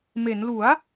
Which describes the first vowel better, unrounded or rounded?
unrounded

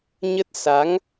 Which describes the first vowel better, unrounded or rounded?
unrounded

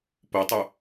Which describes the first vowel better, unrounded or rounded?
rounded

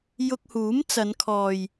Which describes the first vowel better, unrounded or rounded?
rounded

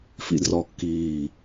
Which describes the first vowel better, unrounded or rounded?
unrounded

